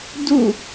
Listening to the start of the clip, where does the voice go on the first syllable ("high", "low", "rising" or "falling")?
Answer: falling